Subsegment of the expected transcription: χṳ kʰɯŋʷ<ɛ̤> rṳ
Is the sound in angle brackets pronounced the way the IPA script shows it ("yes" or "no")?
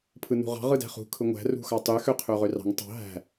no